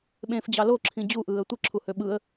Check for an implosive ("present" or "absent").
present